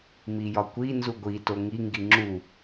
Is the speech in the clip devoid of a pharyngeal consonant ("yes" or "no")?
yes